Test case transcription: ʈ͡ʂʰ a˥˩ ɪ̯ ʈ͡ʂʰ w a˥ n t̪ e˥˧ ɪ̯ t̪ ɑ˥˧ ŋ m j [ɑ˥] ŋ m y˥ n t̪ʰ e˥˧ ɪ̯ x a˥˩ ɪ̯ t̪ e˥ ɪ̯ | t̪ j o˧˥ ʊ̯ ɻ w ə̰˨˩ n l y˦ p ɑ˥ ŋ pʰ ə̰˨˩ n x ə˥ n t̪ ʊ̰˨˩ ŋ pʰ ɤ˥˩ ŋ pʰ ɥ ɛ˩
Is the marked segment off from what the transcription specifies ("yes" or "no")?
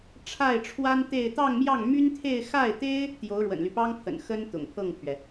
yes